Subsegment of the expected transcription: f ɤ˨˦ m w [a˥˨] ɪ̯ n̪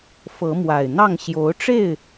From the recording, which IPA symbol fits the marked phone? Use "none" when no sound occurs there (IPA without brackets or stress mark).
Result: a˨˩